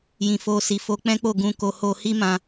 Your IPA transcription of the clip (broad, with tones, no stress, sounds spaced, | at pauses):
j ĩ˧ f o˦ s i˧ f o˦ k͡p ɛ̃˦ k͡p o˦˨ ɡ ũ˧ k o˧ h o˧ h i˦ m ã˧